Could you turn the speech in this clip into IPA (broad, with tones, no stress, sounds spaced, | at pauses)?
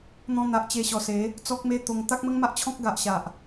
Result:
n̪ ɔ̃˧ n̪ a˨ ʔ t͡ɕ e˧ ɕ ɔ˨˩ s e˨˦ | t͡s ɔ˦ k̚ m e˦ t̪ o˧ ŋ t̪ a˦ k̚ m ə˦ ŋ m a˦ ʔ t͡ɕʰ ɔ̃˦ k̚ ɡ a˨ ʔ ɕ a˨ ʔ